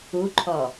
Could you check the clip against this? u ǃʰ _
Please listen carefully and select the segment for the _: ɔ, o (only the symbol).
ɔ